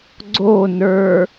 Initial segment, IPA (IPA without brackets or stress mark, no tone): ɡ͡ǀ